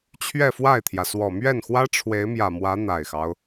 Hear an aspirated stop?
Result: yes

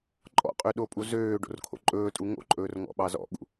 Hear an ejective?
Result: yes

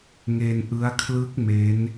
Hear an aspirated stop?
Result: yes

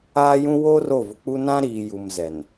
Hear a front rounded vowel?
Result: no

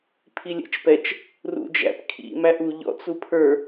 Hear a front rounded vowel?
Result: no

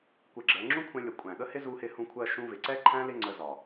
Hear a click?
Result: yes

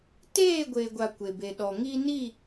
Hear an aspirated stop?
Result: no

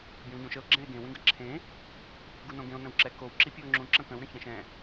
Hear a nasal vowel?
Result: yes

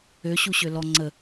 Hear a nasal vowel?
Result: no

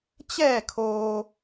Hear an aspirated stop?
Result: yes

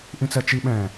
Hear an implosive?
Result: yes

